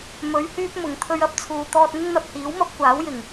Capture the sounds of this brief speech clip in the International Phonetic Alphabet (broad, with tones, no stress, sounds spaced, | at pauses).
m ɵ˨˥ ɥ h yː˥ p̚ m ʊ˨˩ ŋ t̪ʰ ɵ˧ ɥ ɐ˥ p̚ t͡sʰ uː˨ t̪ ɔː˧ t̚ ŋ ɪ˥ ŋ n̪ ɐ˧ p̚ h iː˨˥ w m ɐ˥ p̚ kʷ aː˨˥ w j ɪ˨˩ ŋ